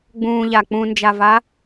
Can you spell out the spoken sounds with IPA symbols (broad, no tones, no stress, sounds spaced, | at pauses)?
ɡ͡b ũː ʎ a k͡p ũ n d͡ʒ a v a